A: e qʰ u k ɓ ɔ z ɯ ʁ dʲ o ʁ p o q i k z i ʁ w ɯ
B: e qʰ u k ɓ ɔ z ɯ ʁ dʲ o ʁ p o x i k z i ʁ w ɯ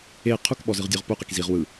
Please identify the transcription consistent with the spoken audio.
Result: A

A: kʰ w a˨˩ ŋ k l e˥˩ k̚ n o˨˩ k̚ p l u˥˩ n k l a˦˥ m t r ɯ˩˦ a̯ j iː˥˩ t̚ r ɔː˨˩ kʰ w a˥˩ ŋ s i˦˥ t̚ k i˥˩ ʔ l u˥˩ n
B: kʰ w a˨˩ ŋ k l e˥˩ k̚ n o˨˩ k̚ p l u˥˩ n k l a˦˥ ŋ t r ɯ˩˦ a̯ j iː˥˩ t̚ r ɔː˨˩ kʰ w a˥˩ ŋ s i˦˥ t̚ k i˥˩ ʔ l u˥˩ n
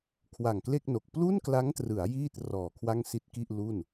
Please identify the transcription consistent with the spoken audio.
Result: B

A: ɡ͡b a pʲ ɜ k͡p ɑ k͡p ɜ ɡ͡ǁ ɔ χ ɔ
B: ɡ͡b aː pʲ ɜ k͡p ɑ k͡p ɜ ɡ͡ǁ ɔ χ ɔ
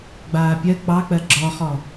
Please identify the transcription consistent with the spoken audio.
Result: B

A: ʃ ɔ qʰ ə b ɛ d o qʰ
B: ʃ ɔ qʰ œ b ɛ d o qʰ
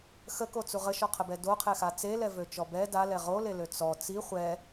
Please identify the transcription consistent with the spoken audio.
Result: A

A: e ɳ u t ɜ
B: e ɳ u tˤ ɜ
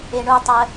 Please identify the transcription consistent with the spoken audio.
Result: B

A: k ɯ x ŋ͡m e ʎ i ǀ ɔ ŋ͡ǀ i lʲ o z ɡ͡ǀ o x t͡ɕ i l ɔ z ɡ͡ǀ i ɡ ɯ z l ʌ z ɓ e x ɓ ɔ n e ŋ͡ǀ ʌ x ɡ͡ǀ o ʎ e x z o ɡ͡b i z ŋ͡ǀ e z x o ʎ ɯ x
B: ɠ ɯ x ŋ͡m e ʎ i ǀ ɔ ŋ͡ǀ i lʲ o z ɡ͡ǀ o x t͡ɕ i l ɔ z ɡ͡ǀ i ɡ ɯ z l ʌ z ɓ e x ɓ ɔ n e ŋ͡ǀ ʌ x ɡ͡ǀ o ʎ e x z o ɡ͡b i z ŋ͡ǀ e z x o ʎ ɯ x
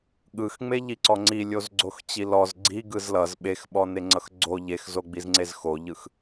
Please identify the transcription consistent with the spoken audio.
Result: B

